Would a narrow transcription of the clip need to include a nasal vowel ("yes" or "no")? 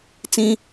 yes